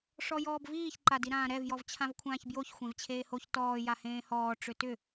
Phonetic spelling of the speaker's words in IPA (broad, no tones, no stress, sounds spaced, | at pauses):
ʂ ɔ j ɔː b v iː ç ǃ a d i ɾ ãː ɾ ɛ v j ɔ v t͡ɕʰ ã v kʷʰ ãː ç b j o ç xʷ ẽ v t͡ɕʰ eː h o ç t ɔː j a h ẽː h ɔː ʈ͡ʂ ʏ t ʏ